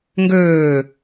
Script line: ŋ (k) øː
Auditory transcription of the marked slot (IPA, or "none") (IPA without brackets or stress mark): ɡ